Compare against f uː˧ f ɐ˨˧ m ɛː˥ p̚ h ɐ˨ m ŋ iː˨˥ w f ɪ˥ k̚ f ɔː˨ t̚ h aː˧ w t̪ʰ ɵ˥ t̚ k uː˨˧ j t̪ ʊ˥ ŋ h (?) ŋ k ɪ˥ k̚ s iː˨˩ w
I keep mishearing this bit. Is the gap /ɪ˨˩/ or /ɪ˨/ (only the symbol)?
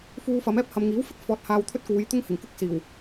ɪ˨˩